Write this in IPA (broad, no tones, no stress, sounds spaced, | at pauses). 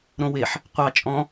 ɾ õ w e ħ | qʷ ɑ t͡ʃʼ ɔ̃